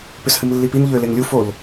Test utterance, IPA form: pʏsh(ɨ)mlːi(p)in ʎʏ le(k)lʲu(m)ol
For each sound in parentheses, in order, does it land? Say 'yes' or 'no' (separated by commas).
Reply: yes, yes, no, no